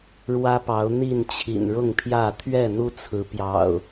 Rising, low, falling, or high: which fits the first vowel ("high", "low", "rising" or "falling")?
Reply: high